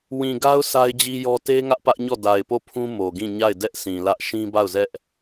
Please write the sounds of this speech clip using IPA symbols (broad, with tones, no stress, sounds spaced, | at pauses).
w ĩ˨ ɡ a˦ ʊ̯ sʰ a˦ ɪ̯ d͡ʑ i˦ j ɔ˦ t e˦ ŋ ä˦ ʔ p ä˦ ʔ ɲ ɔ˦˨ d a˨ ɪ̯ p o˦˨ pʰ ũ˦ m o˨ ɡ ĩ˦˨ ɲ a˦˨ ɪ̯ d ɛ˦ ʔ sʰ ĩ˨ l ä˦ ʔ ʃ ĩ˦ b a˦˨ ʊ̯ z ɛ˦ ʔ